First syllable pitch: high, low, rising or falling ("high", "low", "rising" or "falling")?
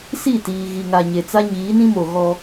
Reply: falling